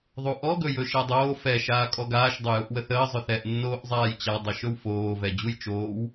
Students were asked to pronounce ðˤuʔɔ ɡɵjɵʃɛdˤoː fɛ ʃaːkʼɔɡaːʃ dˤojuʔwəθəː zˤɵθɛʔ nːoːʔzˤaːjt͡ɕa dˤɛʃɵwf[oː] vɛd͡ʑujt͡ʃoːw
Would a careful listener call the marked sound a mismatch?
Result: no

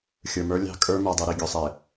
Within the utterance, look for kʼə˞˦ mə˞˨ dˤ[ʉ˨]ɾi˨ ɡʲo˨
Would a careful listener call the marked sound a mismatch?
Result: yes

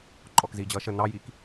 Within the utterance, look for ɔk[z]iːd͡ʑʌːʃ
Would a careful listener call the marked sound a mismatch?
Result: no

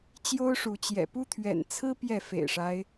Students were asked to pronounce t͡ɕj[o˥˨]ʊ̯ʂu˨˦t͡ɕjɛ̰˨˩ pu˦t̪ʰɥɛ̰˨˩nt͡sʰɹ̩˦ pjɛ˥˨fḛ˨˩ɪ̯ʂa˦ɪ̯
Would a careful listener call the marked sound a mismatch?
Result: yes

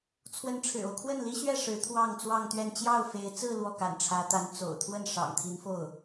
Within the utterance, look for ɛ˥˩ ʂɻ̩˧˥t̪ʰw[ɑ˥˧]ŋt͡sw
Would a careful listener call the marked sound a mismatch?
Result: no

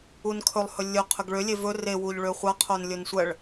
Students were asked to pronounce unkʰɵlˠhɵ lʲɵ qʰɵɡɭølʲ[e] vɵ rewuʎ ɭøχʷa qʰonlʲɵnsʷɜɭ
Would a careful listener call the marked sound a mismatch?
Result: no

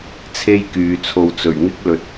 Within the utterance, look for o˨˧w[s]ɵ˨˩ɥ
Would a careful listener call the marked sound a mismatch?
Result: yes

